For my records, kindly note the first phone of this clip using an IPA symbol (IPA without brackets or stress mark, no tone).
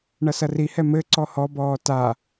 ɳ